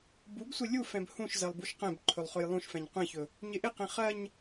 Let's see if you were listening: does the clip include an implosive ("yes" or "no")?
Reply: no